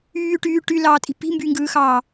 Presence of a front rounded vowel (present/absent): present